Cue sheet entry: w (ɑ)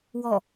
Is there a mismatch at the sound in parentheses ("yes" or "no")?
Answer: yes